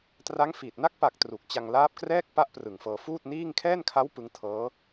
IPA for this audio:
t r a˦˥ ŋ f i˨˩ t̚ n a˦˥ k̚ p a˨˩ k̚ t r u˨˩ k̚ t͡ɕ a˧ ŋ l aː˦˥ p̚ k r ɛː˥˩ k̚ p a˦˥ ʔ p r ɯ˨˩ ŋ f ɤː˧ f uː˥˩ t̚ n iː˥˩ ŋ kʰ ɛː˥˩ n kʰ a˦˥ w p ɯ˦˥ ŋ tʰ ɤː˦˥

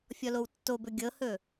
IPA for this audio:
fʲ ɔ l o w tː o b ɵ ɡʲ ɤ h ɵ

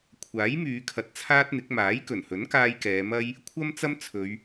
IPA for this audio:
kʷʰ aː˨˥ j m yː˨˧ kʰ ɐ˧ t̚ t͡sʰ aː˥ t̚ n̪ ɪ˨˥ k̚ m aː˨˥ j k ɵ˨˩ n h ɵ˨˥ n k aː˧ j k ɛː˨˧ m ɐ˥ j | kʷʰ ɐ˥ m t͡s ɐ˥ m t͡sʰ ɵ˨˧ ɥ

